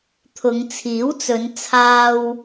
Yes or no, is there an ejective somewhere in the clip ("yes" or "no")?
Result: no